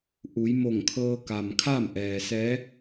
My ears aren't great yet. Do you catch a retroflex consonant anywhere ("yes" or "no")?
no